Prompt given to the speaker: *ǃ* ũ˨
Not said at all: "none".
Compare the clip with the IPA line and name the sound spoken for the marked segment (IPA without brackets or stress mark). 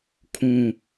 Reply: kʰ